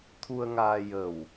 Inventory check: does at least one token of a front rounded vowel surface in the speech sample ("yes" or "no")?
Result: no